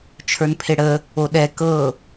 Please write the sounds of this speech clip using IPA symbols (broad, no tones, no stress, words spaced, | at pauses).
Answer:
t͡ʃʰə˞npʰeɽə | oɗɛ kɤ